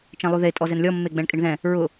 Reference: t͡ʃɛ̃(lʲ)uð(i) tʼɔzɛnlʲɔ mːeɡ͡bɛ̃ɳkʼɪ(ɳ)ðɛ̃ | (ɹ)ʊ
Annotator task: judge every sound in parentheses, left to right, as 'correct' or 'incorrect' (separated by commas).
incorrect, incorrect, correct, correct